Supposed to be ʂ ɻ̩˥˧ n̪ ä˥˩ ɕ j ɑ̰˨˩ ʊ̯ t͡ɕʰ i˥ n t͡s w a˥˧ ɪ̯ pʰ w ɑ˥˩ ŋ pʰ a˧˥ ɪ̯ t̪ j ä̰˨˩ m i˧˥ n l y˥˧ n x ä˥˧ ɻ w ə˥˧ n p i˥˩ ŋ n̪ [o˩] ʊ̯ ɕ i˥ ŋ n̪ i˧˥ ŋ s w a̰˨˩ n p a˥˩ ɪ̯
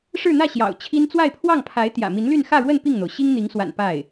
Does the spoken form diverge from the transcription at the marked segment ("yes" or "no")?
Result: no